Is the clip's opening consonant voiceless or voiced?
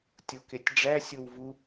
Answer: voiceless